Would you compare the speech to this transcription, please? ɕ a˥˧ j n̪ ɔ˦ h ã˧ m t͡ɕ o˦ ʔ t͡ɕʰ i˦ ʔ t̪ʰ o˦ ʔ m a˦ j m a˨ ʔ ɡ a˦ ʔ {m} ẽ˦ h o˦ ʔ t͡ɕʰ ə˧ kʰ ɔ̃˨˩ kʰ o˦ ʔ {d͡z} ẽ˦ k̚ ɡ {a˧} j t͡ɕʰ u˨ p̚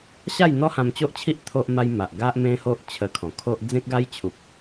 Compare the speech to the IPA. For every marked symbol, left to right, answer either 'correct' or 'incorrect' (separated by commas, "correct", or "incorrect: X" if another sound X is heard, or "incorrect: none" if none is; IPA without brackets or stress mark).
correct, correct, incorrect: a˦